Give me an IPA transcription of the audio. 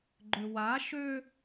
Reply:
ɡ͡ǃ ʏ w a ʃ ø

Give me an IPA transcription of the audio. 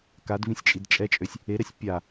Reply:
k a d v ĩ sʲ t͡ʃʼ i d t͡ʃʼ ɛ t͡ʃʼ ø sʲ | e ɾ ɛ sʲ pʲ a

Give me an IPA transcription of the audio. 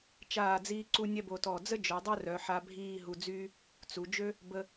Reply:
t͡ʃ aː˧˩ d͡z iː˧ ǀ u˧ nʲ ɛ˥ b o˧ t ɔ˧˩ d͡z ə˥ d͡ʒ œ˩˧ dˤ œ˥ r œ˩˧ ħ a˧ bʱ iː˥˧ ɦ u˧ d͡z yː˥ | t͡s u˩˧ d͡ʒ ø˥ | b ə˧

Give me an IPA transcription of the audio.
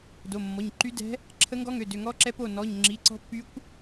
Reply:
d o˩˧˩ mː ɔ˩˧˩ ɲ ǃ y˧˥ d ɛ̤˧˥ | ǁʰ ə˧˥ ŋ ɡ ɔ˧˥ ŋ ø˩˧˩ d ø˩˧˩ ŋ ɔ˧˥ ǁ ɛ˧˥ p o˩˧˩ n ɔ˩˧˩ ɲ ŋ͡ǁ i˩˧˩ ǀ ɔ̤˧˥ pː y˧˥ kʷ

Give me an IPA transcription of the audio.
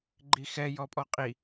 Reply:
ɡ͡ǃ i x ɛ j ɔ pʼ ɔ qʼ i

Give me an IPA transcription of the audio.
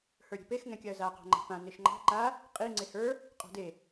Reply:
h ə˞ ɾʲ e̤ p e x ŋ ɛ̃ kʲ a ə̯ z a q ɑ̤ ŋ͡ǃ a̤ p ã n e ʃ ŋ͡ǃ ɑ̤ ǃ a | qʼ i ŋ͡ǀ e h ə˞ | qʼ ɑ̤ d e

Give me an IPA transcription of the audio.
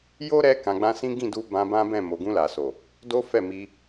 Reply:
j o˦ ɾ ɛ˧ k ã˨ ɡ͡b ã˧ s ĩ˦ ɡ ĩ˦˨ d u˧ b ã˧ b ã˦ b ɛ̃˦˨ m o˨ ɡ ũ˧ l a˨ s o˨ | d o˦ f ɛ˦˨ m i˧

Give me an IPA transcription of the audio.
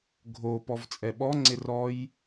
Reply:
ɡʱ o p ɔ v t͡sʼ ɛ ɓ ɔ ŋ͡ǀ ɪ r ɔ j

